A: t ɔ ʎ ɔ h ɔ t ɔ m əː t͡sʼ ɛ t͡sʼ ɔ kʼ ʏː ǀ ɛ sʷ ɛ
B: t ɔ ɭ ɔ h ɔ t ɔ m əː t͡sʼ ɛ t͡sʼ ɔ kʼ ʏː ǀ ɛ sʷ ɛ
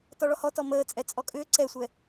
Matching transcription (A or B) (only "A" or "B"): B